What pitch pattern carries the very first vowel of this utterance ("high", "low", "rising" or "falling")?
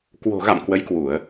low